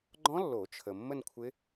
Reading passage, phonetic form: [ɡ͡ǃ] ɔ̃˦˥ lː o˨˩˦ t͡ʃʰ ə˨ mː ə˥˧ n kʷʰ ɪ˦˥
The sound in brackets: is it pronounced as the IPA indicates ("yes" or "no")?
yes